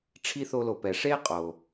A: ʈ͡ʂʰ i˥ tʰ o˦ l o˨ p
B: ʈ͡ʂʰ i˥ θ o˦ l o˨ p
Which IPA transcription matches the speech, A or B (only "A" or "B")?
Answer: B